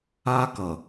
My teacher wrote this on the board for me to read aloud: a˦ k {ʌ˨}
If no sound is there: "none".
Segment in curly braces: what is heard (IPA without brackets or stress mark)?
ʌ˨